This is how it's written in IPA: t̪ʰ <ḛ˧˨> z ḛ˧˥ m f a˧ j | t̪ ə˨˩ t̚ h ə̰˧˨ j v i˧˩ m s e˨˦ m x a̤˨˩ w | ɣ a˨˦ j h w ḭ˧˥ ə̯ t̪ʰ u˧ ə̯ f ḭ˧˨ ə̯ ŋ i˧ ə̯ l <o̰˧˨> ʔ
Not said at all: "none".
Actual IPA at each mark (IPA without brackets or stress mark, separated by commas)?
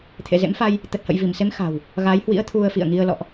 ḛ˧˨, ɔ̰˧˨